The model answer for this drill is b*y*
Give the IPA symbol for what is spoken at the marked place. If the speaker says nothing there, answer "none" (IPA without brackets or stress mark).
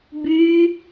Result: y